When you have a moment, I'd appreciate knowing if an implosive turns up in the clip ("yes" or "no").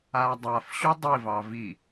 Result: no